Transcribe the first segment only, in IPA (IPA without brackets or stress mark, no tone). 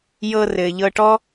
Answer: j